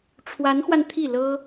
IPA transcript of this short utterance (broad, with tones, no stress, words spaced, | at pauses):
ʈ͡ʂʰwa˧˥nxwa˧n t̪ʰi˥˩lɤ˥